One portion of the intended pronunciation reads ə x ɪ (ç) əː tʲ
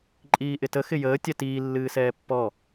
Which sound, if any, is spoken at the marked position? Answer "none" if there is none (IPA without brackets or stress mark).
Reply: j